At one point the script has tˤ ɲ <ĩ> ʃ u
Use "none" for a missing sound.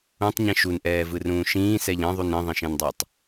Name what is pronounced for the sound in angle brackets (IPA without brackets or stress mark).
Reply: ĩ